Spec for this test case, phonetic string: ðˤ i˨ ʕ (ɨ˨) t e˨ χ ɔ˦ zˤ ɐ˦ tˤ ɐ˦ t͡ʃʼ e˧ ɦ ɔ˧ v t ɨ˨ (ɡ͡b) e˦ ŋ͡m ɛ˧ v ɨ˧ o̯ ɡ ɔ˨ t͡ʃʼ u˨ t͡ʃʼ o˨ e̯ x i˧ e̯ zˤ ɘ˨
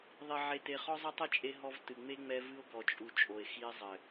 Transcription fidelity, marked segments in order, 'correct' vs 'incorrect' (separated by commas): incorrect, incorrect